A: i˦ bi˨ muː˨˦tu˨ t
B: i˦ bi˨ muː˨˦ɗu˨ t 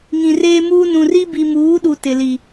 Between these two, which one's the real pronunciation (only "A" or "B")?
B